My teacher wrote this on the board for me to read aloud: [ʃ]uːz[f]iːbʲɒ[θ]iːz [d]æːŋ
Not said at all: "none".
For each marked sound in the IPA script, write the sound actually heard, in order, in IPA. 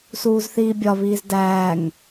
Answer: s, θ, β, d

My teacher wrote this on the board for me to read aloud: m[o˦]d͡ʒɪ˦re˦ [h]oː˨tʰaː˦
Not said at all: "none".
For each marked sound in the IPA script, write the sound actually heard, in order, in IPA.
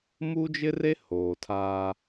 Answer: u˦, h

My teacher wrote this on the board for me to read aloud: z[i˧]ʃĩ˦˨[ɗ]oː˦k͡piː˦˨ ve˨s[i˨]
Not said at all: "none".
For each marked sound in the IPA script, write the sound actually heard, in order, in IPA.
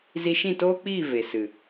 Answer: i˧, t, ɨ˨

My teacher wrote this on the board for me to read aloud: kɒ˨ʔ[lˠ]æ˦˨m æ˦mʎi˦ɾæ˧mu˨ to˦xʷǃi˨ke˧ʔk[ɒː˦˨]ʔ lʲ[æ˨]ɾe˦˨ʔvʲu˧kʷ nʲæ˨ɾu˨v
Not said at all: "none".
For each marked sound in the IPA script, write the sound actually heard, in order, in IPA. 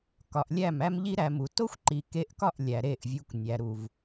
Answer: lʲ, ɒ˦˨, æ˨

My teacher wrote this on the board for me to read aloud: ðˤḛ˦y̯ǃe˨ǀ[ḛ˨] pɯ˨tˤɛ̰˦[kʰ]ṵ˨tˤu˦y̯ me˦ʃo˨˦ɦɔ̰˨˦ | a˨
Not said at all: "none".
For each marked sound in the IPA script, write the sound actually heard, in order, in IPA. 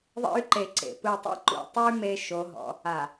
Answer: ḛ˨, ǃ

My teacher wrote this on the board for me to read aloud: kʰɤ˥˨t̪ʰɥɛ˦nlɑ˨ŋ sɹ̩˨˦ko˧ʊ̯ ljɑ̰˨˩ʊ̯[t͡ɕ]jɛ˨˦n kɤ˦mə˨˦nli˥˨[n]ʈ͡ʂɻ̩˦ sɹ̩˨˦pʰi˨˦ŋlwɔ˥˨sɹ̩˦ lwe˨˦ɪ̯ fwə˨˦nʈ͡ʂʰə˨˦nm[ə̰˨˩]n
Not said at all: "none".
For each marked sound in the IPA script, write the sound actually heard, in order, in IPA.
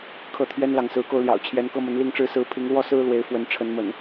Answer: t͡ɕʰ, ŋ, ə̰˨˩

